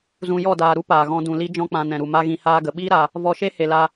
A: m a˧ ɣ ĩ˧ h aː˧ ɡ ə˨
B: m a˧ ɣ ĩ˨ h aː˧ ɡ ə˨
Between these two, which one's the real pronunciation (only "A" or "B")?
B